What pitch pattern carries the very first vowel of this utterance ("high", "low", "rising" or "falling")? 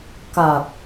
low